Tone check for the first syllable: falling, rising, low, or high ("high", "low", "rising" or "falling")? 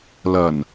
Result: low